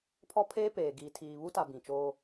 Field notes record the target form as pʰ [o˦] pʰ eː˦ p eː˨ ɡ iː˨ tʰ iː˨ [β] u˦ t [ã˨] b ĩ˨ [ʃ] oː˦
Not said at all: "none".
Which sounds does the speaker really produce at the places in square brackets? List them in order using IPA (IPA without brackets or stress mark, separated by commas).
ɔ˦, β, a˨, t͡ʃ